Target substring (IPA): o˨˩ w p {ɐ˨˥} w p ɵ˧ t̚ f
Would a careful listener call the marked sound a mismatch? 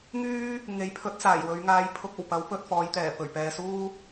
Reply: no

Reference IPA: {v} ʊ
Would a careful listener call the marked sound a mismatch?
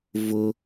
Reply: no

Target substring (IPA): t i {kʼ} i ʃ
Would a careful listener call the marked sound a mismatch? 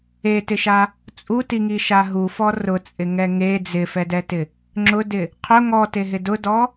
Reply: yes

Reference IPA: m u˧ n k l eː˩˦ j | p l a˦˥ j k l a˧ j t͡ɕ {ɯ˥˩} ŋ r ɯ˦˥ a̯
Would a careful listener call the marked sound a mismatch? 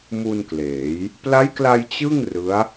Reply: no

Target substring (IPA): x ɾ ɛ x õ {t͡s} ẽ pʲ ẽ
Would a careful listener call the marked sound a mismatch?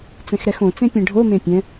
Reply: no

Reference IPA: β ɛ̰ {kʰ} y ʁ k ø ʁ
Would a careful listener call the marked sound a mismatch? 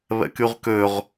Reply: yes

